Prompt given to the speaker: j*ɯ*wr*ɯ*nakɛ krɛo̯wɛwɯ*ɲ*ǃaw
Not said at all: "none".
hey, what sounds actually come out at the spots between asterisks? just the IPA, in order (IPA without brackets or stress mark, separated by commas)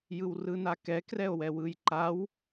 ɯ, ɯ, j